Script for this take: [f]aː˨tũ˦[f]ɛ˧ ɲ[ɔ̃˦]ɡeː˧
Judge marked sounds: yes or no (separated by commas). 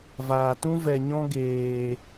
no, no, yes